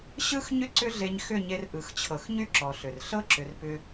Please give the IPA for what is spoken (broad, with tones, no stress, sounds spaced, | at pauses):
ɕ ɯ˦ x ɲ ʏ˦ ǀ ʏ˦ ɮ e˧ ɲ x ʏ˦˨ ɲ e˧ r ʔ ɯ˨ x t͡ɕʰ ɤ˨ x ɲ y˦ ǁ ɔ˨ ɬ ʏ˨ r ɬ ɤ˦ ǁ ʏ˨ r p ʏ˧